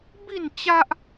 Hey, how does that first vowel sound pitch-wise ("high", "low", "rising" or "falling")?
falling